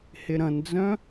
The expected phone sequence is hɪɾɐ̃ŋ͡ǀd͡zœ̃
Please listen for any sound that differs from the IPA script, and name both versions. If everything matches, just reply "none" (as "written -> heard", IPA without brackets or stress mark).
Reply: ŋ͡ǀ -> n